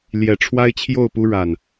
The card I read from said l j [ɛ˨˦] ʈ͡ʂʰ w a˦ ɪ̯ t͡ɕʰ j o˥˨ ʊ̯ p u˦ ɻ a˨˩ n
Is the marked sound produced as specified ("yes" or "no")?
no